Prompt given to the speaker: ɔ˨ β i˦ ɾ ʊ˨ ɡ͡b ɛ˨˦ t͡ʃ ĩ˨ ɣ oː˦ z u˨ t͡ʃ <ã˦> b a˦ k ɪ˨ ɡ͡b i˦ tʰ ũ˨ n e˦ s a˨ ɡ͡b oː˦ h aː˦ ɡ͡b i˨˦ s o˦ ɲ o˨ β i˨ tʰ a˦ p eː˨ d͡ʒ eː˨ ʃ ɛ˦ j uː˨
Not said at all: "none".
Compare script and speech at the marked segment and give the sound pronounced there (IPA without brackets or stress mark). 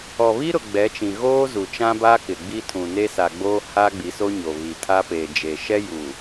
ã˦